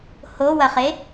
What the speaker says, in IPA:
h o w ɐ χ e

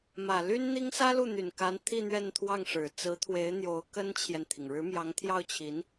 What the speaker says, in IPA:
m ä˨˩ l y˥ n n̪ i˥ ŋ s ä˥ l u˥˩ n̪ y˨˩ n k a˧˥ n t̪ʰ i˥˧ n̪ ɥ ɛ˥˧ n t̪ʰ w ɑ˥˩ ŋ ʂ ɻ̩˨˩ t͡s ɹ̩˧˥ t̪ʰ w e˧˥ ɪ̯ n̪ j o˧˥ ʊ̯ k ə˥ n t͡ɕʰ j ɛ˨ n t̪ʰ i˩ ŋ ɻ ɻ̩˧˥ m j ɑ˧˥ ŋ t̪ʰ j ɑ˥˩ ʊ̯ t͡ɕʰ i˧˥ n

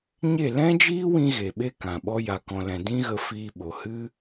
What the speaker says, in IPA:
ɲ e˦˨ l ɛ̃˦ d͡ʒ iː˦ w ĩ˦ ɣ e˨ ɓ e˦ k ã˨ ɓ ɔ˦ j a˧ k ɔ̃˧ l ɛ̃˧ d ĩ˦ ɣ ə˧ f iː˧ ɓ o˨ h ɨ˦

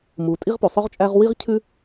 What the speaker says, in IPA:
m u˩ tʼ i˥ ʁ p u˩ sˤ œ˥ ʁ t͡ʃʼ æ˥ ʁ w i˥ ʁ cʰ ʉ˥

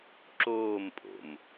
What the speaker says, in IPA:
ǁ oː m pʼ o̰ m

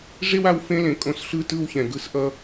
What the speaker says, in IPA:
ʐ e˦ w a˦ w f ẽ˦ l ẽ˨ kʼ õ˦ s ɬ ɯ˦ t ɯ˦˨ w ç ɛ̃˨ ɡ ɯ˦ s ʔ ʌ˦

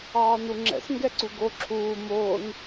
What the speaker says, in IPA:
ɑː n u ŋ͡ǁ ɛ̰ s ŋ ɡ ɛ ǀ u ɡ o ǁʰ uː m oː n

